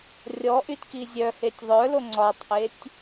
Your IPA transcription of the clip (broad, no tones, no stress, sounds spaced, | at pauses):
rʲ ɔ ʔ y t k i zʲ œ h e tʲ ðˤ œ l o ŋ͡ǀ ɒ tˤ ʔ e tʲ